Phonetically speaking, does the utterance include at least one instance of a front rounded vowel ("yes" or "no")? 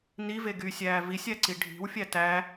yes